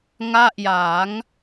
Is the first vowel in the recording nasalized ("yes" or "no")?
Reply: no